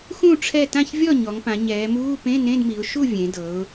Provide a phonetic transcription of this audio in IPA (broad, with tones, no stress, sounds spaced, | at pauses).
x ũ˥˨ ʈ͡ʂʰ ɛ˥˨ t ã˥˨ ç vʲ ɔ˥˨ ɲ ɔ˩˧ ŋ p ã˩˧ ɲ ɛː˩˧ m uː˧˥˧ p ẽ˧˥˧ n ẽ˧˥˧ d m i˩˧ ʊ̯ ʃ u˥˨ vʲ ẽ˩˧ d ɤ˩˧ ʊ̯